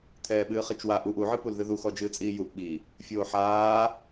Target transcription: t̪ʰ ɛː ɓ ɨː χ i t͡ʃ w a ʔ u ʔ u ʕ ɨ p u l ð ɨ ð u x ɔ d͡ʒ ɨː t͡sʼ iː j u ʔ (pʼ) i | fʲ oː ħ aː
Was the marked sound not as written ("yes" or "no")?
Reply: yes